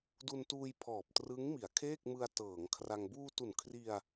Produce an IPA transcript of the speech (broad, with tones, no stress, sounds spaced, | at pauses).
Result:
d u˧ n t uː˧ j pʰ ɔː˨˩ p̚ t r ɯ˦˥ ŋ m i˩˦ a̯ kʰ eː˥˩ k̚ m ɯ˧ a̯ t ɤː˩˦ ŋ kʰ r a˧ ŋ b uː˧ t u˨˩ n kʰ r i˧ a̯